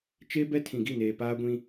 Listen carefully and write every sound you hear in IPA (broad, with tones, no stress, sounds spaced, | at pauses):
t͡ʃ e˦ b ɛ˦ tʰ ĩ˨ ɡ i˦˨ n eː˨ p aː˦ ɡʷ ĩ˦